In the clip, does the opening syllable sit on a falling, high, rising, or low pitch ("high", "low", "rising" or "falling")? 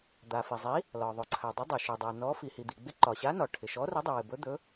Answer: low